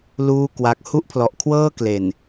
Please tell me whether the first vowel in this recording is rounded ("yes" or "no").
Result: yes